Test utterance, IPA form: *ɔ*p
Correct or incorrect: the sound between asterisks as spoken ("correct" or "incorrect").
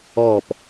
correct